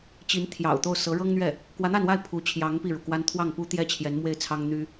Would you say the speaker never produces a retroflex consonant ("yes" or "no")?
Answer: no